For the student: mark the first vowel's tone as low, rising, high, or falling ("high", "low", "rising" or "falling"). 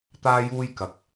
high